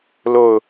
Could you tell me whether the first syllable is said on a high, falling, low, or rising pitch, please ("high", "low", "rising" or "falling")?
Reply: falling